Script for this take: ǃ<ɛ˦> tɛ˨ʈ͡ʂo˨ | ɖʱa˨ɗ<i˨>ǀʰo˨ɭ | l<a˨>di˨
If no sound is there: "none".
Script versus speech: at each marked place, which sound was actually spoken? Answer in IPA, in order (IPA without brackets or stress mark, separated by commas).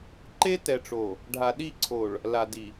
e˦, i˦˨, a˨